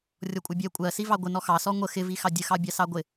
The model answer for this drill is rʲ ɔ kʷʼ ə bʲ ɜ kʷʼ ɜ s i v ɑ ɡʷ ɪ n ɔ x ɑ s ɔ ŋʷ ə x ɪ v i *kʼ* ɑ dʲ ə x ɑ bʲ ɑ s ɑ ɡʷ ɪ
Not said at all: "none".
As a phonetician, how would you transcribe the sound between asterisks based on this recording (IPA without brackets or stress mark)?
x